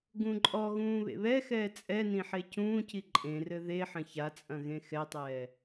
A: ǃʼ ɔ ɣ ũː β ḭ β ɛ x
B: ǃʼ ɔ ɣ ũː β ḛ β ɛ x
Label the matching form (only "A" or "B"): B